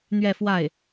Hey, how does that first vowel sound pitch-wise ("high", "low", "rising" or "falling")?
falling